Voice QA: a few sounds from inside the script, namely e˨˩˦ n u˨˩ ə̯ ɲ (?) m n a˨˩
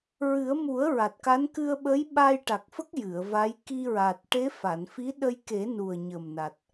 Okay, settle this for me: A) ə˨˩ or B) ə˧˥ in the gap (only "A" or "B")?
A